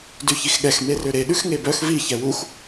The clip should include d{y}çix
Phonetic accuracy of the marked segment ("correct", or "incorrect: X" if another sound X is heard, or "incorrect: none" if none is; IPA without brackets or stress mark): correct